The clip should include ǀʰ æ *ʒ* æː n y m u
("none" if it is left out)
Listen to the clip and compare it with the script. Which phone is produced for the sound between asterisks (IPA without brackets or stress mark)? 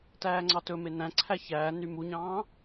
ç